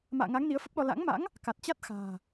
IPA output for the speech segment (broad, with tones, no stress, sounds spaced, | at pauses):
m a̰ː˧˨ ŋ a˨˦ ŋ n i˨˦ ə̯ f ə˦˥ p̚ ɗ ɔ˧ l a̰˧˥ ŋ m a̰˧˥ ŋ | k a˨˩ t̚ t͡ɕ a˦˥ t̚ x a̤ː˨˩